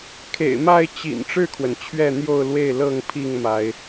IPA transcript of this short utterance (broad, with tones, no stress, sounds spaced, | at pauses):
kʰ ḛ˨˩ ɪ̯ m a˥˨ ɪ̯ t͡ɕ ḭ˨˩ n ʈ͡ʂ ɻ̩˥˨ kʰ w ə˩ n t͡ɕʰ ɥ ɛ˥˨ n̪ j o˥˨ ʊ̯ l w e˥˨ ɪ̯ l ɤ˥˨ ŋ pʰ i˥˨ ŋ m a˨˦ ɪ̯